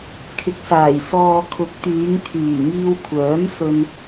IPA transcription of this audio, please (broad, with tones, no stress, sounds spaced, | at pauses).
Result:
kʰ ɪ˨˥ k̚ s aː˨˩ j s ɔː˨ kʰ ʊ˨˥ k̚ t̪ yː˨˧ ŋ t̪ʰ yː˨˩ ŋ iː˧ w kʷʰ œː˨˥ m s ɵ˧ n